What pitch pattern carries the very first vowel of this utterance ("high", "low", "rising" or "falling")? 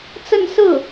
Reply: falling